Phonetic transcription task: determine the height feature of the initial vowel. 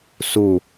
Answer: high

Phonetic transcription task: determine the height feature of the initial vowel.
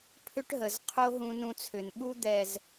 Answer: high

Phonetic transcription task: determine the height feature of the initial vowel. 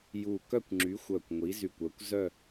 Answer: high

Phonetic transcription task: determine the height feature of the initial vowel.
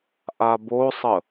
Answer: low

